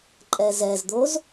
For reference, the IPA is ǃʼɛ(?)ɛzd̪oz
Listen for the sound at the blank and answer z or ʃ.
z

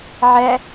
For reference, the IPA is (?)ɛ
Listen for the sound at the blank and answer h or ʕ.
ʕ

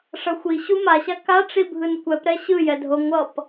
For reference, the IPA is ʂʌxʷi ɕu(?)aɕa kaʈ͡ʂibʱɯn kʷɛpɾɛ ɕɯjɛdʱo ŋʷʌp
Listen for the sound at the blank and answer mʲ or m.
m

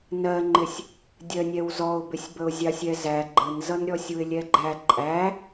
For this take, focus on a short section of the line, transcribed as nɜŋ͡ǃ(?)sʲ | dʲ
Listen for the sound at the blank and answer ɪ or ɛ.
ɪ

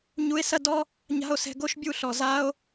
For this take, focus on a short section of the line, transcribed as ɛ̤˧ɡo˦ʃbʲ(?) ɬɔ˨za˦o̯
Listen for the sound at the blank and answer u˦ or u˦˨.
u˦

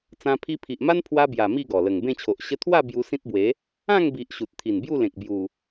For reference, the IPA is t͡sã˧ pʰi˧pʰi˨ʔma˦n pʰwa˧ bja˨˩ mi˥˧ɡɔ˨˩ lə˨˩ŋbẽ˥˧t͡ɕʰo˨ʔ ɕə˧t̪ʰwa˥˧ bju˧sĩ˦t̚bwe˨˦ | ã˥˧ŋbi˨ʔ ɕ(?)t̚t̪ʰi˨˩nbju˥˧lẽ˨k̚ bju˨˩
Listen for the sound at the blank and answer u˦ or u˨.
u˨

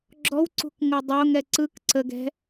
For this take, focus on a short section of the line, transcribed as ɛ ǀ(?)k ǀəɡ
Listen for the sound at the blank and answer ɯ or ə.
ɯ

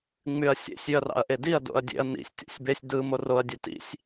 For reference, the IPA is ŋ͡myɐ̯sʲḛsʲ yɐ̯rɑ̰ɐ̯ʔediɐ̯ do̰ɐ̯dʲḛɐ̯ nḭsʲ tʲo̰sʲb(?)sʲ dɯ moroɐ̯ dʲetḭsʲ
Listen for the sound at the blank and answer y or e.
e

